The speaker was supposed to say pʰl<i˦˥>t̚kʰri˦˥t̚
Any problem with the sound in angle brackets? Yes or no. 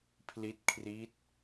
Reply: no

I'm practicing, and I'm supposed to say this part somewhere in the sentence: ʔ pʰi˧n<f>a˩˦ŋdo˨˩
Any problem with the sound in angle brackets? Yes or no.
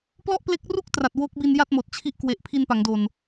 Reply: yes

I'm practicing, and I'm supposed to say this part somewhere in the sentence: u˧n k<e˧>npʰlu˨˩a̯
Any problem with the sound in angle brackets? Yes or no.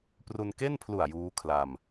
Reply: yes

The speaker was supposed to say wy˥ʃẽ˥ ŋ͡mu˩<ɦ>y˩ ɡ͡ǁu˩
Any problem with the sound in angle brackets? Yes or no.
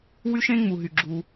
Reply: no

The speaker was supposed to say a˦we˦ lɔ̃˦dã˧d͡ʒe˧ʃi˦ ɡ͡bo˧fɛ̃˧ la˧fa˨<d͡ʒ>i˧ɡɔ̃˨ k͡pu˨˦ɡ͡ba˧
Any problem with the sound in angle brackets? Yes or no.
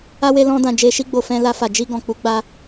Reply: no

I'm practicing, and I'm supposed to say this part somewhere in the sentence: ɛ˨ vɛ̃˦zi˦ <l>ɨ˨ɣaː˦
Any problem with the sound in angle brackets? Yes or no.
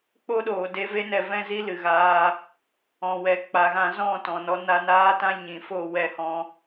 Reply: no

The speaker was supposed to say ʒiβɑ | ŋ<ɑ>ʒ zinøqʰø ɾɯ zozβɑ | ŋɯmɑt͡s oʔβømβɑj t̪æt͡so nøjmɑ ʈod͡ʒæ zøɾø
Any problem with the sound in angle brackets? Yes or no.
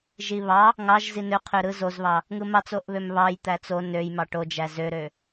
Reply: no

